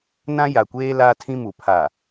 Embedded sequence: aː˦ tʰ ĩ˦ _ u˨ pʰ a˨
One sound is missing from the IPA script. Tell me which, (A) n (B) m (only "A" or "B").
B